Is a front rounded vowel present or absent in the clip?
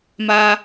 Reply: absent